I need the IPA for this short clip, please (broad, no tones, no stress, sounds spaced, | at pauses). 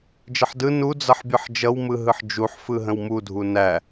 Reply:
d͡ʒ ə ħ d ɯ n u d͡z ʌ ħ bʲ ɯ ħ d͡ʒ ʌ w m ɯ ɦ ɯ ħ d͡ʒ u ħ f ɯ ɦ ə̃ w m u dʱ u n æ